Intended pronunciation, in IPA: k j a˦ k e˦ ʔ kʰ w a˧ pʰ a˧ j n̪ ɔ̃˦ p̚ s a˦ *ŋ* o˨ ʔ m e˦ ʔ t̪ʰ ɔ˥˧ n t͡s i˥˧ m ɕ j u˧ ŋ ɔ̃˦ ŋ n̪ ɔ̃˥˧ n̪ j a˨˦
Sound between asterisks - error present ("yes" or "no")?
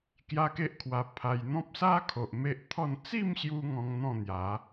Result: yes